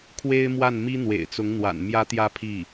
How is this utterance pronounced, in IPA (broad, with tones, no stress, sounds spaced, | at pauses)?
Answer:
kʰ w e˥ ɪ̯ m w a˥˩ n m i˥ n̪ w ḛ˨˩ ɪ̯ t͡s ʊ˧˥ ŋ n̪ w a̰˨˩ n m j ä˧˥ t̪ j ä˧˥ pʰ i˥˩